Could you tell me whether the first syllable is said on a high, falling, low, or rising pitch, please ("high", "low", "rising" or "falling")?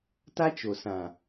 high